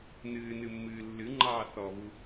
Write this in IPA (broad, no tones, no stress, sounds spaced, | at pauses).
n ɨː n ɨ mː ɨː lː ɨ ŋ͡ǃ ɑː θ ɔ β u